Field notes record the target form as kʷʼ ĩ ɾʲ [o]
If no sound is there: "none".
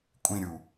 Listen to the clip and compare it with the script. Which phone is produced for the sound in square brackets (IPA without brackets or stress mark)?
u